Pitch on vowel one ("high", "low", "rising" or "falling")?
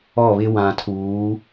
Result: falling